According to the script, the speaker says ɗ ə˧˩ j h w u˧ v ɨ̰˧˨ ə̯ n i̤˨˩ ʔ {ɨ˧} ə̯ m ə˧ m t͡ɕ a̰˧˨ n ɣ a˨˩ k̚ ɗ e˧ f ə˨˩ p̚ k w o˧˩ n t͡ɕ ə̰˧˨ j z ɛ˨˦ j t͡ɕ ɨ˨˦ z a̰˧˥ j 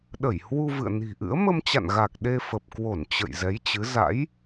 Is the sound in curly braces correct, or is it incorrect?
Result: incorrect: ɨ̰˧˥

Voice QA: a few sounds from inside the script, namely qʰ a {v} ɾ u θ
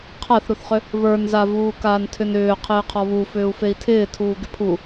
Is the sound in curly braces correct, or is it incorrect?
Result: incorrect: θ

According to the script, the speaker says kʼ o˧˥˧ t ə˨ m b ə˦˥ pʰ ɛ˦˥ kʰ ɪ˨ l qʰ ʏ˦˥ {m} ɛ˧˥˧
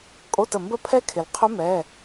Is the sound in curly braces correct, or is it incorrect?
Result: correct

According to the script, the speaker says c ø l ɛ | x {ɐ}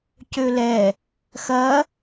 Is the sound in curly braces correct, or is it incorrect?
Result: correct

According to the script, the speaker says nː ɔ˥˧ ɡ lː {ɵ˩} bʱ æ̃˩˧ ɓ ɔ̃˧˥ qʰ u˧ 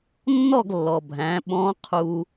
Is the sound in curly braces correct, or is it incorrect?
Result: incorrect: ɔ˩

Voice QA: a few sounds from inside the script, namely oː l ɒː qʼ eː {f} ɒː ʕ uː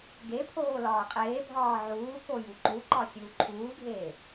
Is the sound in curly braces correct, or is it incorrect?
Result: incorrect: bʱ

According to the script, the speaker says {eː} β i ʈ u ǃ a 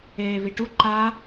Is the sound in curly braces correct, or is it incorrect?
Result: correct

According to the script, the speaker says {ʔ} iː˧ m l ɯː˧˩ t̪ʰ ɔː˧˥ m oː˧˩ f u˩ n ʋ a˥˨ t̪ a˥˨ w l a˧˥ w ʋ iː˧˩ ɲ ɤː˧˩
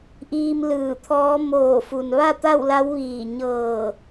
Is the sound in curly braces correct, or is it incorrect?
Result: correct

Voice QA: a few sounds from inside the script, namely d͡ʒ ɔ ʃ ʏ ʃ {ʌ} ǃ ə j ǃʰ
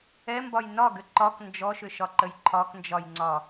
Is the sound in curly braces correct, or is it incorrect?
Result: incorrect: ɒ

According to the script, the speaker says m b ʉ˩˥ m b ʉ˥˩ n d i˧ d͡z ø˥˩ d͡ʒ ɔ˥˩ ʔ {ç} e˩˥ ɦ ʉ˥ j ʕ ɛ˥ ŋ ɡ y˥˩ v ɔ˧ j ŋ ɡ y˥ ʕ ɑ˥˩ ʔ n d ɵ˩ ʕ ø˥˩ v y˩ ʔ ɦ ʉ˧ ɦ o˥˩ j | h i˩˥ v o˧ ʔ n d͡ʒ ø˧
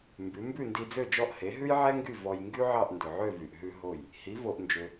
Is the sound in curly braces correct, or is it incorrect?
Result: incorrect: h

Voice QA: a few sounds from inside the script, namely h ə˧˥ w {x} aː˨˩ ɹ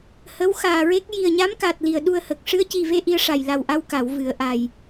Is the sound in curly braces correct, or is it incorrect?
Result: correct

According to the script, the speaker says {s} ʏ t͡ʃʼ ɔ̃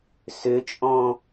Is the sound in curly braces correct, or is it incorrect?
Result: correct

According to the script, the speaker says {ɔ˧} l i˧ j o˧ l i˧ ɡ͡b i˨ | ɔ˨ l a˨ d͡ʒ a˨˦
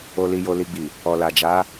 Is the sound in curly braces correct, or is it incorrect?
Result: incorrect: o˧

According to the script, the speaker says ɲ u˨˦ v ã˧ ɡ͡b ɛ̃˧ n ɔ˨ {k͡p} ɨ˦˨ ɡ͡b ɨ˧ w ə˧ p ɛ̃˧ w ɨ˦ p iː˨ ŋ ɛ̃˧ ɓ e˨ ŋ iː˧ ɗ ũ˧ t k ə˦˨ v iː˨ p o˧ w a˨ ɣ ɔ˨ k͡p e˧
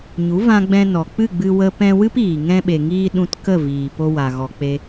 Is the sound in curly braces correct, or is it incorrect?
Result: correct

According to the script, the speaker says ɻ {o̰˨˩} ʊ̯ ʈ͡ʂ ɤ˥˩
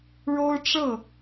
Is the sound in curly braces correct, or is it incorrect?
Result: incorrect: o˥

